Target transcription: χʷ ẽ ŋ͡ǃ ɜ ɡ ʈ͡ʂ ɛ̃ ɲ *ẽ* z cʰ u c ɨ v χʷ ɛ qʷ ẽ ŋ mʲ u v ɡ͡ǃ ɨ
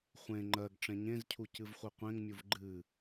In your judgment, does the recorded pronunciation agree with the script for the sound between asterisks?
yes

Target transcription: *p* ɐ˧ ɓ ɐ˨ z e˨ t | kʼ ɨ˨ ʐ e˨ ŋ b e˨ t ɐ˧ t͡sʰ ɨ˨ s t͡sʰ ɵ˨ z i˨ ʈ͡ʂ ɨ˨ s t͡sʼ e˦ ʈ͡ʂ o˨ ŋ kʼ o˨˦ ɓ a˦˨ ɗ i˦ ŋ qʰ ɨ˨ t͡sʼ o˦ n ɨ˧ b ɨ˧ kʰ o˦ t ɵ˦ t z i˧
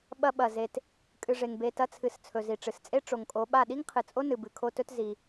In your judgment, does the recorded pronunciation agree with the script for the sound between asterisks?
no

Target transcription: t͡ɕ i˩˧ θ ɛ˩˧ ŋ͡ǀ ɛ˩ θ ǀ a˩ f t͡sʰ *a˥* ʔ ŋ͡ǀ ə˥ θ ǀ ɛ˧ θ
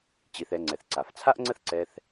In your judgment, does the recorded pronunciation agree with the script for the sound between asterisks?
yes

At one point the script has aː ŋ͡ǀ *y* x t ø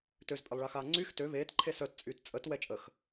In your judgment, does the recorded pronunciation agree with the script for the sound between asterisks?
yes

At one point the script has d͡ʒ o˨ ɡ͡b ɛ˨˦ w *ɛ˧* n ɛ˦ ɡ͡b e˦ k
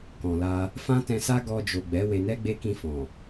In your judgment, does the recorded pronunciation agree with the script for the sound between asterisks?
no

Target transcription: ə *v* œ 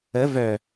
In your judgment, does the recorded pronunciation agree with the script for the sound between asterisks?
yes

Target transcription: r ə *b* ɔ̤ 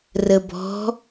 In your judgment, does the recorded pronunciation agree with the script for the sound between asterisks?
yes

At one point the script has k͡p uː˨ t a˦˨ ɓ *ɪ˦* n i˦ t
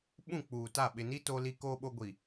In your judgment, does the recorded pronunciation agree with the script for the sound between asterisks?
no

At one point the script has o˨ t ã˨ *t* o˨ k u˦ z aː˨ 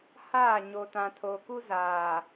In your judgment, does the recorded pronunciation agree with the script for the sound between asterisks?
no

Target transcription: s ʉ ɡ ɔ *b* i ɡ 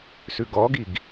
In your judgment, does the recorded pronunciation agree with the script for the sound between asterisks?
no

